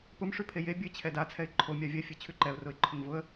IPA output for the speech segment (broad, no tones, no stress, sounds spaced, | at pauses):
p ʊ m ʂ ʉ pʰ e j e bʲ ɘ ɪ̯ t͡ɕʰ ɛ d a t͡sʰ ɛ ɪ̯ ǃʰ o mʲ a vʲ ɛ fʲ ɛ t͡ɕʰ ʉ ǃ ɛ ʊ̯ r ʊ ɪ̯ ǃʰ ʊ ŋ v ʊ ə̯